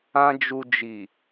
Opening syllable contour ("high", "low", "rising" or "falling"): high